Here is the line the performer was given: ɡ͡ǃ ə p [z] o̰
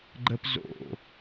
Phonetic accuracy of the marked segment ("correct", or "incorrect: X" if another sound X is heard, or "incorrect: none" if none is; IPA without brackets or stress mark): correct